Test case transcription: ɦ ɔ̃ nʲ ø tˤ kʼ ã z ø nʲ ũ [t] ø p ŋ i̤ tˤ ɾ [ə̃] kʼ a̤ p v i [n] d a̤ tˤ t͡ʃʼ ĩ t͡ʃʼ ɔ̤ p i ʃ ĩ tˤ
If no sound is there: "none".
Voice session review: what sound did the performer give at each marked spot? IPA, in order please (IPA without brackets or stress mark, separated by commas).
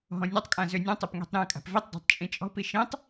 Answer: tˤ, ɛ̃, tˤ